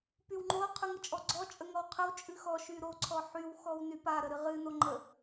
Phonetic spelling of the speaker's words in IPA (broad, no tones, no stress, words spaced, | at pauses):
pywŋ͡ǃo qʰyŋət͡ʃʼɔɡ͡ǀɔ t͡ʃʼəŋɔwqʰɨw t͡ʃʼɨxɔ ʃyɾo ǀʰɔħyw xɔwnypa ɾəɾɨʁɨ noŋ͡ǃə